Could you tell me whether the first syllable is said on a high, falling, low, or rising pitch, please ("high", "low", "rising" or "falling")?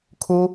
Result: high